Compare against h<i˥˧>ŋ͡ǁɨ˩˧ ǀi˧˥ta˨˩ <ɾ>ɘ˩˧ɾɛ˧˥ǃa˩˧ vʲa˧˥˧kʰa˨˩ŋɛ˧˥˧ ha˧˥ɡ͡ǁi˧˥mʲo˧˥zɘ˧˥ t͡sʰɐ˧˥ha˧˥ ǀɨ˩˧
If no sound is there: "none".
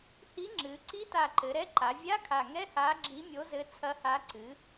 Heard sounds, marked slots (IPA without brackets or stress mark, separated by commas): i˧˥, ǃ